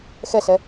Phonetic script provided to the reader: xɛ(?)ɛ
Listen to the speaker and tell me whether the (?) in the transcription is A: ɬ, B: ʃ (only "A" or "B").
A